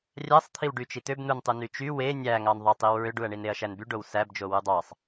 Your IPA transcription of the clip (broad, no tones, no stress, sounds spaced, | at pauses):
rʲ æ sˤ t̪ʰ i w ɖ y t͡ʃ i t̪ ø b n̪ u n tˤ u n y t͡ʃ y w e nʲ æ ŋ ɑ n ðˤ ɑ tˤ i w ɹ ø ɖ u ɐ̯ ɳ i n e ɐ̯ ʃ æ n b y ɖ o w s æ b d͡ʒ o w u dˤ ɑ sˤ